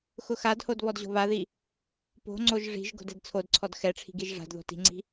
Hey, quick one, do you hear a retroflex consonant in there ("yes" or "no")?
yes